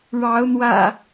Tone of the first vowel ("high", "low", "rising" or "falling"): rising